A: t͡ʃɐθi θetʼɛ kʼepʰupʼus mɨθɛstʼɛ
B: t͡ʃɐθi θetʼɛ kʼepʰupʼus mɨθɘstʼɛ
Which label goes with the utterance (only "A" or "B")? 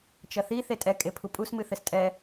B